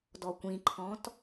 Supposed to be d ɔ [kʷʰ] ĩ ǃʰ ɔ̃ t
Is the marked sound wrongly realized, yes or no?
yes